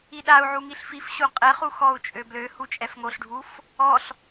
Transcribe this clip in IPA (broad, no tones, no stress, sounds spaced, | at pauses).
i ɗ a u̯ ʕ u ŋ i ɬ f i f ɕ u qʼ ɛ χ u x ɔ u̯ t͡ʃʼ ø b l ø h u t͡ʃʼ ɛ f ŋ o ɬ ɖʱ u f | ɔ ɬ